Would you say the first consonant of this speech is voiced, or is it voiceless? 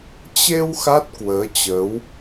voiceless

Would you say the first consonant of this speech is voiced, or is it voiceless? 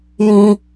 voiced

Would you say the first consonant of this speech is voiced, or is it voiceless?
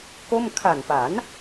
voiceless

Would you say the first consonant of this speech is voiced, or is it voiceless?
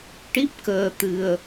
voiceless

